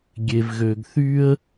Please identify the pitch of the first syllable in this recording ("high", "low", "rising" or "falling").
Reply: low